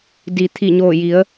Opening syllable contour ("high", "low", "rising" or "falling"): low